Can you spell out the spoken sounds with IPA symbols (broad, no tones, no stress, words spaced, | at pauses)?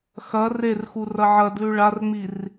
xɐ rer xurɐʕɐdlʉ ɭarŋ͡mir